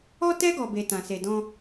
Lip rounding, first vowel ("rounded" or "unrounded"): rounded